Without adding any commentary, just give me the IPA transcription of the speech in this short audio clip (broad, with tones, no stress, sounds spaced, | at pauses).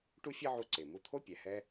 ʈ u˥ fʲ ɛ˥ ʕ u˧ ǀ e˩ m u˧ t̪ʰ o˥ pʲ ɛ˩ h ɛ˧